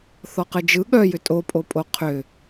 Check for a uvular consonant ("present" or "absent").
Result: present